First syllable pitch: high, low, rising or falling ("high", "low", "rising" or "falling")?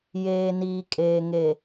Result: low